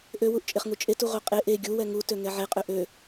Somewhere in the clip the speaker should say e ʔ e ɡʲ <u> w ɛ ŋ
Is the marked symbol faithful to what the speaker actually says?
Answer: yes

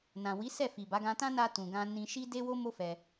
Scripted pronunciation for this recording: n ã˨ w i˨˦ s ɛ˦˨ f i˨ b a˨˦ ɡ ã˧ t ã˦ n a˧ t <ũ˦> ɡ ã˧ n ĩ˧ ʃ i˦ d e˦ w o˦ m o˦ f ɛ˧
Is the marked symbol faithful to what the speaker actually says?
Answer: no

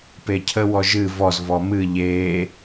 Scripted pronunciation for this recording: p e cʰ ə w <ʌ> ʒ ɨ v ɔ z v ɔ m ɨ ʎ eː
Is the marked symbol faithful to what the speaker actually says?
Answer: no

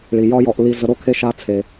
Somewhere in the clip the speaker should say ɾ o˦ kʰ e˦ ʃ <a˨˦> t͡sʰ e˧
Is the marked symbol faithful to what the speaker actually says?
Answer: no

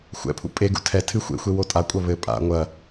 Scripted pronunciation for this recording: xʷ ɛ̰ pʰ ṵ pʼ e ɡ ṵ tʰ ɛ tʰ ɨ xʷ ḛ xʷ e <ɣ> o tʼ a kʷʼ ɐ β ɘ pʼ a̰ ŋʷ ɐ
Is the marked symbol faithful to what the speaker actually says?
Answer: no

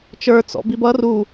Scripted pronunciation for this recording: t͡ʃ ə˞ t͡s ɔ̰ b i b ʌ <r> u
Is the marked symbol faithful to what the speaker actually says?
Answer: yes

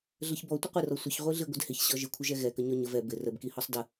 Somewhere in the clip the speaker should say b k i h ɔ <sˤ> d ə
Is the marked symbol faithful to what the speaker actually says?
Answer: yes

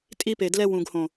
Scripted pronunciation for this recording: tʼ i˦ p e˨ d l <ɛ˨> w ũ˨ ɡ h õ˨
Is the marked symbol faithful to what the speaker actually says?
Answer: no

